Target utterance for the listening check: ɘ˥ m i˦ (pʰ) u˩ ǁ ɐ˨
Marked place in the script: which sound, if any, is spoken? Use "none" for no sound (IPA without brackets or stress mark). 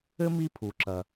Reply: pʰ